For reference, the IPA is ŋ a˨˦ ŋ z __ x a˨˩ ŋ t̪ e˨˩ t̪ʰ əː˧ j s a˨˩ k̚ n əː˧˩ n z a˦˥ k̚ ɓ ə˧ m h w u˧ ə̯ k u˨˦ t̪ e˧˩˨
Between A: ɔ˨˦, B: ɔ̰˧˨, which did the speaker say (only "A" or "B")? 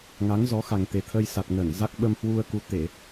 A